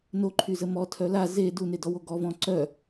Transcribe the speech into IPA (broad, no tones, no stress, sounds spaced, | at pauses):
n o ǃʰ y z ə m ɔ tʰ œ l a z e d u n e d ɔ w o ɡ ɔ v ɔ̃ ǀ œ